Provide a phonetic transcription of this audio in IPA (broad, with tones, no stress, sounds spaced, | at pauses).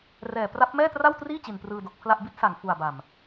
r ɛː˨˩ p r a˦˥ p̚ m ɛː˥˩ t r a˥˩ w t r iː˥˩ t͡ɕ i˨˩ n p r ɯː˧ d o˨˩ k̚ pʰ l a˥˩ ʔ b i˦˥ t̚ s a˨˩ ŋ f u˨˩ a̯ b a˨˩ m